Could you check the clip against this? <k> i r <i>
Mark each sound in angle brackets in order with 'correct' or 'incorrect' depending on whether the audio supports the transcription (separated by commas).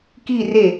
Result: correct, incorrect